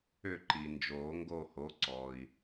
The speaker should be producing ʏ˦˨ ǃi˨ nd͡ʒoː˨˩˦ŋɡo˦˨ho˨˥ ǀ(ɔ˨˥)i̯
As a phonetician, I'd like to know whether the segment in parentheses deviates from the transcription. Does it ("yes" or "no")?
yes